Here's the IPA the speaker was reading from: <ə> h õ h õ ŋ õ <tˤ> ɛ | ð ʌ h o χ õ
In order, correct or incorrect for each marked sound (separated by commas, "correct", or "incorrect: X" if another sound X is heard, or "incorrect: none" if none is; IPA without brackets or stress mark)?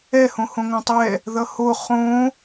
incorrect: ɛ, correct